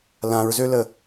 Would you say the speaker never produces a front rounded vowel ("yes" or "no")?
no